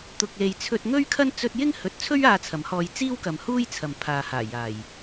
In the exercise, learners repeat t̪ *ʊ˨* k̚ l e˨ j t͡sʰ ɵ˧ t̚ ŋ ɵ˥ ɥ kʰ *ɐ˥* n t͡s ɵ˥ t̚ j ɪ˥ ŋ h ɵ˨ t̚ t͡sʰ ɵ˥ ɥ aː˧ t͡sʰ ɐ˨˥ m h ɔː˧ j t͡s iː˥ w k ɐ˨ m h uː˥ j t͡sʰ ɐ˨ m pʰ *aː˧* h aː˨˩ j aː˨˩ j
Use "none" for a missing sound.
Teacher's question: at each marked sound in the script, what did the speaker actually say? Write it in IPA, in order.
ʊ˨, ɐ˥, aː˨

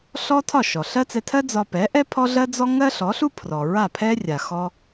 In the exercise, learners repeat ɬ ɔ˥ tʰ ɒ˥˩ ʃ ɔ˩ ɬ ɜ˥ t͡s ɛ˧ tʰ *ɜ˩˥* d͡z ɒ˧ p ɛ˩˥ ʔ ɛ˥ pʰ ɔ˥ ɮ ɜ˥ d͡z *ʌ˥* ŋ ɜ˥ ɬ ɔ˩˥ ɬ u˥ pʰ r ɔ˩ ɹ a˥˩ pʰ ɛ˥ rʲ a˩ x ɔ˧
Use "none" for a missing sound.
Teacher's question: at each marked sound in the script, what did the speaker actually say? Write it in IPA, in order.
ɜ˥, ɔ˥

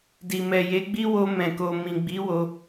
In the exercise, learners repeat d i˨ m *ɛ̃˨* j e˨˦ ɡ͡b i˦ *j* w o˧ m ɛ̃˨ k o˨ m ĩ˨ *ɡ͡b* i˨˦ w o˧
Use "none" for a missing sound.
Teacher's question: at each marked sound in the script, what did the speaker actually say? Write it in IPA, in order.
ɛ˨, none, ɡ͡b

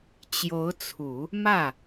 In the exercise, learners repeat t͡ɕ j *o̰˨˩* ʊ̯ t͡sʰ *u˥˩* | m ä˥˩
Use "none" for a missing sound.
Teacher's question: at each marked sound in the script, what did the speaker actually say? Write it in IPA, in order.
o˧˥, u˨˩˦

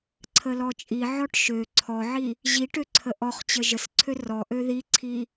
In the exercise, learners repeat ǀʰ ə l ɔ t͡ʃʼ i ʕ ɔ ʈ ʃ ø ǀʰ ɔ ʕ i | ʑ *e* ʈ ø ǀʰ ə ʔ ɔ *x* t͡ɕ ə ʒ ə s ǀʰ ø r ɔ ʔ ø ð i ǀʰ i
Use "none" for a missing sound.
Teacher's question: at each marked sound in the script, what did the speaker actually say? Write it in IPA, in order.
i, χ

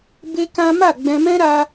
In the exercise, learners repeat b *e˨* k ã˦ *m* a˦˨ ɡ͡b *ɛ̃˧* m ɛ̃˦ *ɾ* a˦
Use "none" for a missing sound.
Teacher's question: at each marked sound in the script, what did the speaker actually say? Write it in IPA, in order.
e˦, m, ɛ̃˧, ɾ

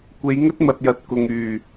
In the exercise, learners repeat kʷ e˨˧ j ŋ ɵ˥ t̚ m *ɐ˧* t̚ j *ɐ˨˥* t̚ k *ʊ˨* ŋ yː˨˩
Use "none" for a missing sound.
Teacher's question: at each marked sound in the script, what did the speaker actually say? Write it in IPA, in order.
ɐ˨, ɐ˨˥, ʊ˨

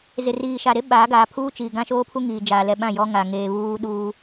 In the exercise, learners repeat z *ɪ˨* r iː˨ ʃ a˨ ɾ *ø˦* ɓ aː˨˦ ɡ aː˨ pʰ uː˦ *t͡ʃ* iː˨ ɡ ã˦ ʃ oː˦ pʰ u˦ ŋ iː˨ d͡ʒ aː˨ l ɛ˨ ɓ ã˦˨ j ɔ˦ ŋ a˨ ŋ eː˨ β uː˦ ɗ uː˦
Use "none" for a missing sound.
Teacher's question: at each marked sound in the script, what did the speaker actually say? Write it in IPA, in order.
ɪ˨, e˦, t͡ʃ

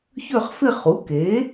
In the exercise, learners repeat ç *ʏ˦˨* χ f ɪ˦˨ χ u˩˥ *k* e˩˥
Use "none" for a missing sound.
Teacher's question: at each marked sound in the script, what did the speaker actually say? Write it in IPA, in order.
ʏ˦˨, k

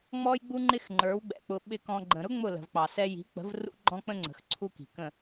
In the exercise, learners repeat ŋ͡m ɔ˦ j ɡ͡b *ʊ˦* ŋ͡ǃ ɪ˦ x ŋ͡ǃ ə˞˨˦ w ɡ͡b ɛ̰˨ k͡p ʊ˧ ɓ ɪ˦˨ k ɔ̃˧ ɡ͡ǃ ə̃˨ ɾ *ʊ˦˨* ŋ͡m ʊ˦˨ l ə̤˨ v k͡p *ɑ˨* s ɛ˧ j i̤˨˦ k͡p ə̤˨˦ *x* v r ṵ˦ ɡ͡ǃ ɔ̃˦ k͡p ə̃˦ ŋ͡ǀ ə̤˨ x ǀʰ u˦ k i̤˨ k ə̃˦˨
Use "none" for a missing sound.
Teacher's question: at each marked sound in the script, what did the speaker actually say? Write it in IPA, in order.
u˦, ʊ˦, ɑ˨, none

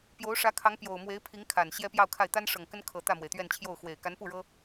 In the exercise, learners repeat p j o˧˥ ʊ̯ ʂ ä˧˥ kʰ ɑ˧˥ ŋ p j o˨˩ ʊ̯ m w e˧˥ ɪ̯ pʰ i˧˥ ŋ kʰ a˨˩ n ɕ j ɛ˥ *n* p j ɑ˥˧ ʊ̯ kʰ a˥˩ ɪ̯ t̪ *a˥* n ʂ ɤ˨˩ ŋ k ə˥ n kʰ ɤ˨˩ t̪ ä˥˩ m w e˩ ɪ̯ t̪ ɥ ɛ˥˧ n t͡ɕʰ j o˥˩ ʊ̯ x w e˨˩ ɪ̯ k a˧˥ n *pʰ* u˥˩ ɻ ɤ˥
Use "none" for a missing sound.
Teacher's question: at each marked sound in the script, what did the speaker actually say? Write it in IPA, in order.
none, a˥, p

